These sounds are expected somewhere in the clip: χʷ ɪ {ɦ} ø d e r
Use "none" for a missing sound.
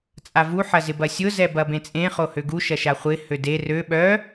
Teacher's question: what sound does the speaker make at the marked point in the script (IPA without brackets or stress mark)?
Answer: h